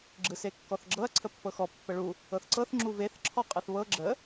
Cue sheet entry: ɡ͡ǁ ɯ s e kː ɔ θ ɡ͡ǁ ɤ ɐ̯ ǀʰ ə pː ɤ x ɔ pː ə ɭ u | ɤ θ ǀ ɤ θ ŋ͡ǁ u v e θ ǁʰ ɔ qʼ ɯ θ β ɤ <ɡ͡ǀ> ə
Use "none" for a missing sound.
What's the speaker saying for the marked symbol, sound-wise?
ɡ͡ǁ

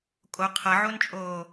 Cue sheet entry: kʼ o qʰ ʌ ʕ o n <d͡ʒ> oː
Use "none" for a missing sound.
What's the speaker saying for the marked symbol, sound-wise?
t͡ʃʼ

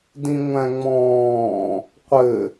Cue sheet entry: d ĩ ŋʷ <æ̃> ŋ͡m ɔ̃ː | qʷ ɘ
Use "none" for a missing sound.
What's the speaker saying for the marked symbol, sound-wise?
æ̃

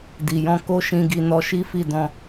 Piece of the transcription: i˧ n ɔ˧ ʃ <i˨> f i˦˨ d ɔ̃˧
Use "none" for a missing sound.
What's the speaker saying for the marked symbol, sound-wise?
i˦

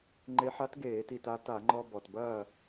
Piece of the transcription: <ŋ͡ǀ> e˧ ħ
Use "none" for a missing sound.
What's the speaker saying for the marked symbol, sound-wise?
ŋ͡ǃ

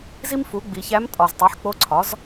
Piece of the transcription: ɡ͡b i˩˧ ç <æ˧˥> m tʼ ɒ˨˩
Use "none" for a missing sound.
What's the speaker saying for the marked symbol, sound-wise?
æ˧˥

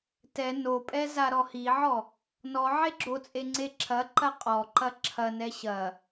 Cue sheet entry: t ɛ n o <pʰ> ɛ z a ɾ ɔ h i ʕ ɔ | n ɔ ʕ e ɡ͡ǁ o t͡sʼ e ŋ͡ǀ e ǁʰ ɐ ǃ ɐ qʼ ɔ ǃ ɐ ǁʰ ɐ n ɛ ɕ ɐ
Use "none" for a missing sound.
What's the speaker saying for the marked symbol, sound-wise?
pʼ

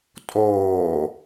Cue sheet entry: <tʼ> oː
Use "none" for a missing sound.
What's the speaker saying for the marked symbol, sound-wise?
tʼ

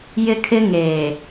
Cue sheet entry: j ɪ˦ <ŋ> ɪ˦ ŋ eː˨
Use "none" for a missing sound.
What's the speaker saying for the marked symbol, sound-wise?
kʰ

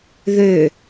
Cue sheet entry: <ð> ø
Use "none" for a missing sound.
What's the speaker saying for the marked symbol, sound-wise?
ð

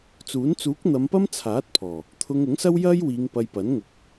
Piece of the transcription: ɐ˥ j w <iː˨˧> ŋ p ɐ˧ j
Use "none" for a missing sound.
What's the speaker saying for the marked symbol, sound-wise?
iː˨˧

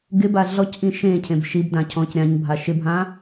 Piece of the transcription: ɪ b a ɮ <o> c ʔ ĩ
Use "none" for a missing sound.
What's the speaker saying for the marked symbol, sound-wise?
ɔ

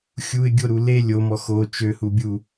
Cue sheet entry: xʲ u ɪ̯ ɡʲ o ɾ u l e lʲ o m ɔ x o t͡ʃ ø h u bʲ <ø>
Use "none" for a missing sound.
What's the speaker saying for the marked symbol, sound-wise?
u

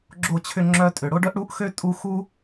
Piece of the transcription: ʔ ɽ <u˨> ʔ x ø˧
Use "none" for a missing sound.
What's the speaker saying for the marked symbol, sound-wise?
u˨˦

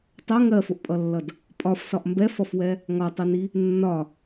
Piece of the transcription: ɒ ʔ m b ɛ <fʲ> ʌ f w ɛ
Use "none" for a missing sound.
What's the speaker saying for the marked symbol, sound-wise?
f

